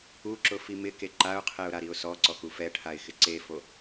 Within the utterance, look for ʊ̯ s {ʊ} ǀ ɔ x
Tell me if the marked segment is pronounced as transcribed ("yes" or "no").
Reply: no